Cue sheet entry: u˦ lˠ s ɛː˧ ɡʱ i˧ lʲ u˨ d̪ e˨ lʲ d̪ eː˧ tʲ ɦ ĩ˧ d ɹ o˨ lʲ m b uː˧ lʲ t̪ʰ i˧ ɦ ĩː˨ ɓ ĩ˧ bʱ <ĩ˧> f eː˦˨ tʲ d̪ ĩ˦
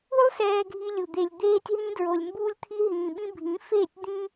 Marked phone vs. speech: incorrect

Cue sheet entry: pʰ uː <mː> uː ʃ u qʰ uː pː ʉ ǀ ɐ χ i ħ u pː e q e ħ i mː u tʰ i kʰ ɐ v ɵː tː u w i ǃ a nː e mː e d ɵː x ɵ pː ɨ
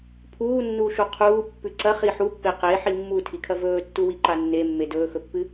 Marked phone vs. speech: incorrect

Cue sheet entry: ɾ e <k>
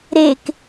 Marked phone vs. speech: correct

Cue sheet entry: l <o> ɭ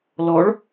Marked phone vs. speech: incorrect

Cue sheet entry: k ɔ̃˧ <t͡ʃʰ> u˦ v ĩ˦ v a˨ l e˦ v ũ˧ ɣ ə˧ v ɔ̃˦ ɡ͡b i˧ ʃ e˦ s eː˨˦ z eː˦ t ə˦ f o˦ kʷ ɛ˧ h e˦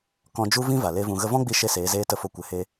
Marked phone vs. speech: incorrect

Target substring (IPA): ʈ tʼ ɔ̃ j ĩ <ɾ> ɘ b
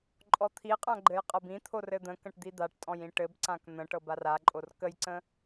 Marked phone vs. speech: incorrect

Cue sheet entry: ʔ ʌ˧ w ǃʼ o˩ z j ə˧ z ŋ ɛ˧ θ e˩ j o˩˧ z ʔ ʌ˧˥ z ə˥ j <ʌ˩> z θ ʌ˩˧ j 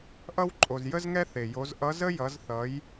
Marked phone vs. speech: incorrect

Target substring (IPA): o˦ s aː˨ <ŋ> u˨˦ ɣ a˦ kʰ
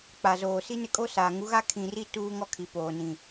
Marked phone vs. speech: correct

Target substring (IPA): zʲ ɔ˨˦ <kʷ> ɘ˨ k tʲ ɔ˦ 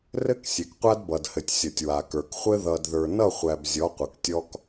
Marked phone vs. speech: incorrect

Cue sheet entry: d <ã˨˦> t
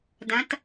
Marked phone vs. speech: correct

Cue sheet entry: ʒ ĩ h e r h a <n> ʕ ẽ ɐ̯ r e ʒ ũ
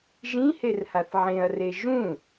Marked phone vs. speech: incorrect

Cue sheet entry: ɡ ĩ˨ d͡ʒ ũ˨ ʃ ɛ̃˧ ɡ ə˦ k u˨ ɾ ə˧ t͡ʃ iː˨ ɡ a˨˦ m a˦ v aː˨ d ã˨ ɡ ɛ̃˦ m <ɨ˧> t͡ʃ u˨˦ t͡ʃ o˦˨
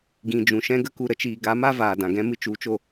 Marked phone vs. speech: correct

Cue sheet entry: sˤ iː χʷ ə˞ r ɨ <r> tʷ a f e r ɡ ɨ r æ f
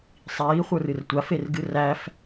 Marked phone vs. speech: correct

